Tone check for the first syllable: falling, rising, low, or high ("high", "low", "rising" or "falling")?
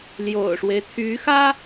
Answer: low